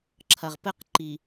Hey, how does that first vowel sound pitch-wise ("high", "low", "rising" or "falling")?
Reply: low